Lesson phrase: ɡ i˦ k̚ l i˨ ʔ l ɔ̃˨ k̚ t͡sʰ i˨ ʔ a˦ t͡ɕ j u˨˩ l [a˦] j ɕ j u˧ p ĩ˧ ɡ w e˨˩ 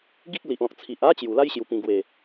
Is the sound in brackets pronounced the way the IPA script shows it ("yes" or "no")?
yes